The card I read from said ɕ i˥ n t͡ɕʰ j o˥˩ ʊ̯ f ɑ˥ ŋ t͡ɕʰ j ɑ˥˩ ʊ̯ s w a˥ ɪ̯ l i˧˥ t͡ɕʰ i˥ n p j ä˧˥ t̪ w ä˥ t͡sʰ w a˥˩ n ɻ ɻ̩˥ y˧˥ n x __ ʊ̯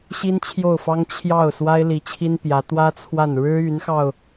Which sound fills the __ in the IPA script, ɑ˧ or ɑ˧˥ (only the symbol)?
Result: ɑ˧